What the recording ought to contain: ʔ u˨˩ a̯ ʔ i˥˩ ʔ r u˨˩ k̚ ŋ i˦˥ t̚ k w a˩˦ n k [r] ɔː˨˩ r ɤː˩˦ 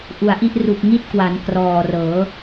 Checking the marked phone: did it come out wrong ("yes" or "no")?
no